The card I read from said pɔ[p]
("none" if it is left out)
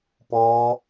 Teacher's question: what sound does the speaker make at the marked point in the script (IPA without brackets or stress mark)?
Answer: none